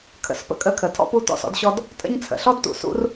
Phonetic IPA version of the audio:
kʰ ə̰˨ s p ə̰˦ kʼ ə˦˨ kʰ ə˨ tʰ ɔ̰˦ p u˦ t ɔ̰˦˨ s ɔ̰˦ d ɕ ɔ˦ d | tʼ ə̰˦ ɲ t͡sʰ ə̰˨ ɬ ɔ˦ d t ṵ˨ s ṵ˦ r

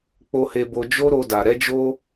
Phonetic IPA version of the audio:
k͡p o˧ h e˧ b o˧ d͡ʒ o˦ ɾ o˧ d a˨ ɾ ɛ˨˦ d͡ʒ o˦

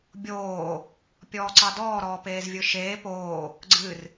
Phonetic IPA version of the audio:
bʲ oː | pʲ ɔː ǀ ɑ d ɔː ɾ ɔː p eː z vʲ ɯ ʃ eː p oː | ɡ͡ǀ ɨ r

